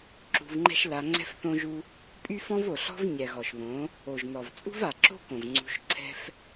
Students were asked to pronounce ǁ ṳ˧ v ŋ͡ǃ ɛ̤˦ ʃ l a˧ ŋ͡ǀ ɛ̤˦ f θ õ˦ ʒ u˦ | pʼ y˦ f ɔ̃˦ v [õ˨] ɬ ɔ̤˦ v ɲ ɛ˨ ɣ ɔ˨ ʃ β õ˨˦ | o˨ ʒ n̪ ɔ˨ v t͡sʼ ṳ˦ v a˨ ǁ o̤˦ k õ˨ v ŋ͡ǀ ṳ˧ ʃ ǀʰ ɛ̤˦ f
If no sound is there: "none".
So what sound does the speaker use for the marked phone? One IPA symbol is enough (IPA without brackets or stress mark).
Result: o˨